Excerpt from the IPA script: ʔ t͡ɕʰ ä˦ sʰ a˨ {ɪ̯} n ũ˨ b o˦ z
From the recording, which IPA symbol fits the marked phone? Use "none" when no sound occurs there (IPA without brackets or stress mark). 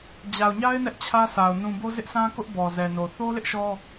ʊ̯